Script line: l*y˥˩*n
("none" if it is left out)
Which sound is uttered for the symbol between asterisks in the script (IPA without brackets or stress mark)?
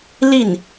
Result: i˥˩